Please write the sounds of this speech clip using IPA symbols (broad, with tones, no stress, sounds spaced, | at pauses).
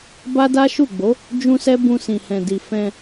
b a˦ d a˦ ʃ u˦˨ ɡ͡b o˨˦ | d͡ʒ ũ˦ s ɛ˦ b ũ˧ s ĩ˨ h ɛ̃˨ d i˨ f ɛ̃˧